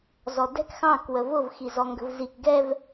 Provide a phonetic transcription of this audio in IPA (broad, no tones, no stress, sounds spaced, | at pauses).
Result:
z ɔ d ɛ̤ k x ɑ̃ k w ə v ʊ v x i z ɔ ŋ ɡ ə̤ v z i k ɡ ɛ v